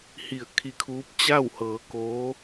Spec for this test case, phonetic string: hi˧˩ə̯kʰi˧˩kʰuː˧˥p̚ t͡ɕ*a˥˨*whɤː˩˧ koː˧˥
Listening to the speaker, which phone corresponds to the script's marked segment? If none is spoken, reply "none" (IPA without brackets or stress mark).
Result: a˥˨